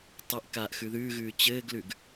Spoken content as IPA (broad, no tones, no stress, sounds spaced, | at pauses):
tˤ ɘ ʔ k aː ʔ x ʉ ð ʉː ɣ ʉː t͡ɕ ɘː ɡ l ʉ ɡ